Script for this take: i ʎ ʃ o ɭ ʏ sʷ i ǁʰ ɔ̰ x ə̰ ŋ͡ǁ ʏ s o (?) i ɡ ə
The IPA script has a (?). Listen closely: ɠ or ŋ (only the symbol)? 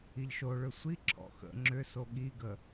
ɠ